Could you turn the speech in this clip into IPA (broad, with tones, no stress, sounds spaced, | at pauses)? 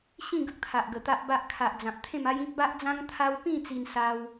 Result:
ɕ ĩ˥˧ ɡ ə˦ k̚ t̪ʰ a˨ ʔ ɡ ə˨˩ t̪ a˦ ʔ b a˦ ʔ kʰ a˨ ʔ d͡z ã˨ p̚ t̪ʰ ẽ˥˧ m a˦ j ĩ˦ k̚ b a˦ ʔ d͡z ã˦ ŋ t̪ʰ a˦ w p ĩ˥˧ t͡s i˧ n s a˧ w